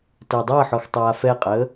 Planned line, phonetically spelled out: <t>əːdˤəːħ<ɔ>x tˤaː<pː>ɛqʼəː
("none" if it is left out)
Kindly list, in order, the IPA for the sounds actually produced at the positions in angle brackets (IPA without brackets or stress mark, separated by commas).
t, ɔ, f